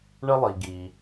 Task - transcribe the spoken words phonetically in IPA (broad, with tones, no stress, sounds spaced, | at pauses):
ɳ ə˥ lˠ i˩ ɡ i˩